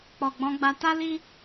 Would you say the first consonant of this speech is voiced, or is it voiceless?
voiceless